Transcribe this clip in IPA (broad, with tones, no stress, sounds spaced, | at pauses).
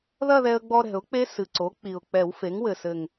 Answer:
ð ɐ˥˧ ð ɛ˧ ə̯ ɡ͡b ɔ˧ ɾ ɛ̤˨˩˦ ʊ̯ k͡p e˦˥ s ɨ˨˩ ǀ o˩˥ k͡p i˨˩ ʊ̯ k͡p ɛ˨˩˦ w f e˩˥ ŋ w ɘ˨˩ s ɘ˨˩ ŋ